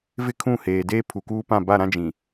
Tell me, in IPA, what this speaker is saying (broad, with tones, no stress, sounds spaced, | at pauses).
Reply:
v ɪ˦ kʰ ũ˦˨ h eː˨ d eː˦ pʰ u˨ k uː˦ p ã˦˨ b a˦˨ ɾ ã˦ d͡ʒ ĩ˨